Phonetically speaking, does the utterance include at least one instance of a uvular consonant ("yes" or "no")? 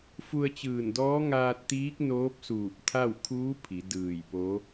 no